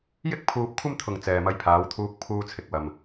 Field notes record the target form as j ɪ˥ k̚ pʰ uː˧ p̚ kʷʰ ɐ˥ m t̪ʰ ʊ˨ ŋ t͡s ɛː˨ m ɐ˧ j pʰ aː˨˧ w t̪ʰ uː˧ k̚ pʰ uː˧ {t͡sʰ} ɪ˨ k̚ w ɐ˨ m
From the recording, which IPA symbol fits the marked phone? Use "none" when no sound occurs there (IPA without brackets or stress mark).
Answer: t͡sʰ